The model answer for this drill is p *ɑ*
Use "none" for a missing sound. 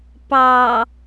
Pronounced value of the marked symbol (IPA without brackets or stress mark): ɑ